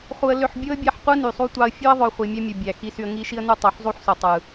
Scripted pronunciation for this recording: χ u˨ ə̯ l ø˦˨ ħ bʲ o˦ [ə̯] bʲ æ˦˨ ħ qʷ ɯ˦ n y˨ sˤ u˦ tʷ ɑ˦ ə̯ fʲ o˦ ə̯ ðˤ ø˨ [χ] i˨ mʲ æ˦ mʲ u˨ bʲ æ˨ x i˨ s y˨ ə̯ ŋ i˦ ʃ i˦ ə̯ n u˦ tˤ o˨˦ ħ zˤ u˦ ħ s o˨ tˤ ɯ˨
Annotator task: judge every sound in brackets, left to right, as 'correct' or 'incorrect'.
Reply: correct, incorrect: χʷ

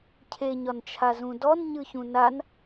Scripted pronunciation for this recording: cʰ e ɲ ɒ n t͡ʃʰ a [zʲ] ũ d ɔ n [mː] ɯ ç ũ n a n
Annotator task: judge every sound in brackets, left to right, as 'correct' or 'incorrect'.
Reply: incorrect: z, incorrect: ɲ

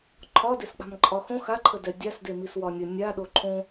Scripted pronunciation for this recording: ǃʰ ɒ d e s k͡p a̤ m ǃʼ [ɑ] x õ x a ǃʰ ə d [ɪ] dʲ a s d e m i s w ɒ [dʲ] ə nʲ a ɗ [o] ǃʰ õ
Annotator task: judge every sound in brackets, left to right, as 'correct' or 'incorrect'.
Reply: incorrect: ɒ, incorrect: ɛ, incorrect: nʲ, correct

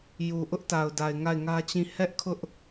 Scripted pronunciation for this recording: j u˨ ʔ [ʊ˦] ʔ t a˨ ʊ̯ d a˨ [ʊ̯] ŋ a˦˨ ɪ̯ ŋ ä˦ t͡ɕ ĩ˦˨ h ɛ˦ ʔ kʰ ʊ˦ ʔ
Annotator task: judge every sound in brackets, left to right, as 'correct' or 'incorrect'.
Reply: correct, incorrect: ɪ̯

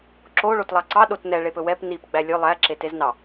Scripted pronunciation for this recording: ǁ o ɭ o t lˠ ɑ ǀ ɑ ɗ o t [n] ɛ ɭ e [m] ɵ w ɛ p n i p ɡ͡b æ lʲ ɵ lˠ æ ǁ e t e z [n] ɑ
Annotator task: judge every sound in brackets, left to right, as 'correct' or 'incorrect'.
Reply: correct, incorrect: p, correct

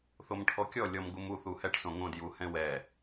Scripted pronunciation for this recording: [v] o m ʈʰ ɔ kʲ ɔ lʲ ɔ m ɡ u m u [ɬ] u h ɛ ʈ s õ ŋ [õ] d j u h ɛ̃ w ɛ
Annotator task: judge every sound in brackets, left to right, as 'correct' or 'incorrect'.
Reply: incorrect: θ, incorrect: θ, correct

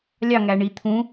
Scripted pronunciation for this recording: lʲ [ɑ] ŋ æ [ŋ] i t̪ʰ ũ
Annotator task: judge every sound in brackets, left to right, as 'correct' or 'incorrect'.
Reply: correct, incorrect: ɳ

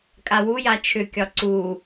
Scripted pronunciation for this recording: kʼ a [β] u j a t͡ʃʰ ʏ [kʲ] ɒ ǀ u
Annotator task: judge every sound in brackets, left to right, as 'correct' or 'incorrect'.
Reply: incorrect: w, correct

